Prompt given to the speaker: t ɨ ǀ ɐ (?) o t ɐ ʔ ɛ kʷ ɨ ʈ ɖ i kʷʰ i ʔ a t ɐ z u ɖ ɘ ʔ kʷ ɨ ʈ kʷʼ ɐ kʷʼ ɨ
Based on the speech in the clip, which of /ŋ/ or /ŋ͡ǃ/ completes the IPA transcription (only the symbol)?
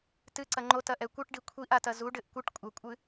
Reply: ŋ͡ǃ